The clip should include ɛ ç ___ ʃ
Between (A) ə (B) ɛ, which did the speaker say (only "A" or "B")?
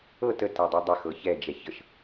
A